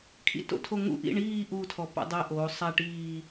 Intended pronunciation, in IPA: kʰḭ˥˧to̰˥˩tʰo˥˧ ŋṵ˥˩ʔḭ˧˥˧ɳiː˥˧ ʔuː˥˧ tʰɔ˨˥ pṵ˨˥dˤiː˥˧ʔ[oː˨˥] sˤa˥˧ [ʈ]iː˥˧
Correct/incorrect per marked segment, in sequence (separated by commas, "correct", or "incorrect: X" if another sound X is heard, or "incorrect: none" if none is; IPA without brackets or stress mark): correct, correct